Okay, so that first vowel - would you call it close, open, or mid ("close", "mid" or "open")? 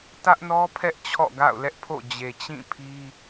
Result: open